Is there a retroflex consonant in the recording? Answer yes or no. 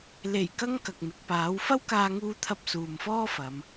no